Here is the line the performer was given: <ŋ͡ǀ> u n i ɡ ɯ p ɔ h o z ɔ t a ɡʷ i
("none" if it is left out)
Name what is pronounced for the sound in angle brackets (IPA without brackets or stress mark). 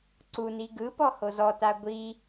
ǀ